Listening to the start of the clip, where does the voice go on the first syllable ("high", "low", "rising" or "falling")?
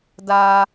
high